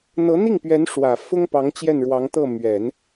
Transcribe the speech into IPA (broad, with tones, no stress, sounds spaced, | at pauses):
n̪ ɤ˧˥ n̪ i˥˩ ŋ p ɥ ɛ˧˥ n ʂ w ä˨˩ f ʊ˥ ŋ p ɑ˧˥ ŋ t͡ɕ j ɛ˥˩ n ɻ w ɑ˧˥ ŋ t̪ ɤ˥˩ m ɥ ɛ˨˩˦ n